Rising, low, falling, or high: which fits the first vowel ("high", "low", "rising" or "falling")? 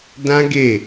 high